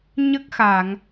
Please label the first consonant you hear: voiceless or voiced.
voiced